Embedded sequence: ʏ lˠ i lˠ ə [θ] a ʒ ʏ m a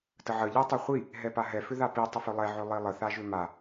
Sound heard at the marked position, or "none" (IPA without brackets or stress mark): θ